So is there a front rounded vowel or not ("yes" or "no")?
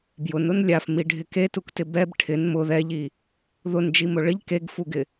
no